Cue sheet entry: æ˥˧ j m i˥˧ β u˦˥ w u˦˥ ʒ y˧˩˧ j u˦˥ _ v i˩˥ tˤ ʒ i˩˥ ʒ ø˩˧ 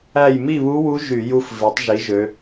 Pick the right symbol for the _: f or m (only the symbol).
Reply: f